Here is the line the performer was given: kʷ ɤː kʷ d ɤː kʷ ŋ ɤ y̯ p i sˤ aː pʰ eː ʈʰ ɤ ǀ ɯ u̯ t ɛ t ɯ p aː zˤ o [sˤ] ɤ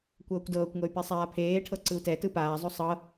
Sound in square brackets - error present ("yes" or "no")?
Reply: no